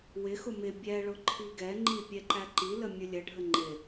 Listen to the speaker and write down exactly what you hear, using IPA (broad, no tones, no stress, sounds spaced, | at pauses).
w ɪ x ʊ m ɪ bʲ ɛ ɭ ʊ ǃʰ i ɡ ɛ ŋ͡ǃ i pʲ ɛ ǃ æ ǃ i l ə mʲ ʊ lʲ ə ɖʱ ə ŋ͡ǃ ɪ